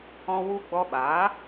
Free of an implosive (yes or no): no